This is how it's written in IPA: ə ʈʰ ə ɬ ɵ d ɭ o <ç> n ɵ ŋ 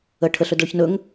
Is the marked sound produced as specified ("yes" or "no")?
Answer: yes